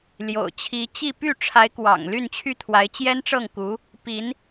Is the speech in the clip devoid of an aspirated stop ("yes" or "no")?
no